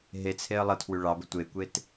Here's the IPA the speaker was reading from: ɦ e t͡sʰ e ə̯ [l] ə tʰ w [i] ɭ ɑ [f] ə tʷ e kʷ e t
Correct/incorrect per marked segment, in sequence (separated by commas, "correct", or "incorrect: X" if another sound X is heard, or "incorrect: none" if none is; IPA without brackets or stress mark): incorrect: lˠ, incorrect: y, incorrect: b